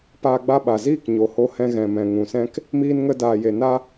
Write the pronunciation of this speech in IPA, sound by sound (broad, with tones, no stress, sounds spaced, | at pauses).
p aː˧ ɡ͡b a˧ ɓ a˨ z iː˦˨ k ɲ o˨ h o˧ h ɛ̃˧ ɣ ɛ̃˨ m ɛ̃˨ ŋ ũ˨ s ɛ̃˦ k | m iː˧ n ŋ ə˧ d aː˨ j e˨ n a˧